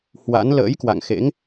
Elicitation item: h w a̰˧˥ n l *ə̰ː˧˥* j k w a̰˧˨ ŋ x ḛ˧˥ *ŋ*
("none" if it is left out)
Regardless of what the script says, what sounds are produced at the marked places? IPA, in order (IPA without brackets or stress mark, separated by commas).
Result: ə̰ː˧˥, ŋ